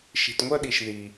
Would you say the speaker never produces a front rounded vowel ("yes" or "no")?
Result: no